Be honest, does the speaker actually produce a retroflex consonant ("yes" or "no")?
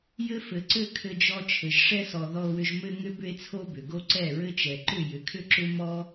yes